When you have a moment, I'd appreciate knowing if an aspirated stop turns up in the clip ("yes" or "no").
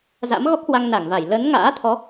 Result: yes